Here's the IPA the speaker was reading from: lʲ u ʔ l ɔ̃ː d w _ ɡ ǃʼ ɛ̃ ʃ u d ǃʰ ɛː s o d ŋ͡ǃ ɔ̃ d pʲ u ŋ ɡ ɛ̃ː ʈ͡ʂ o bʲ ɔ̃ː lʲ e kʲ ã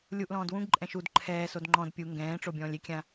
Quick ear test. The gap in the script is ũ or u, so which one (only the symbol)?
ũ